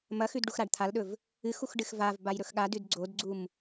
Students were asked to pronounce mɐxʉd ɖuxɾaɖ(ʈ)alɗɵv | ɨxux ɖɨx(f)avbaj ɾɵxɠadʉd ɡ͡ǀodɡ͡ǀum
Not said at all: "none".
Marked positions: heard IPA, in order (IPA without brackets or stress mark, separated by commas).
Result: t̪ʰ, v